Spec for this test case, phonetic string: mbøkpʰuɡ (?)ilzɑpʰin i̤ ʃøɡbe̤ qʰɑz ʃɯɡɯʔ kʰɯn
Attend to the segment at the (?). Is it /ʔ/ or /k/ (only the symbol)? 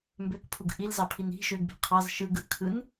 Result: ʔ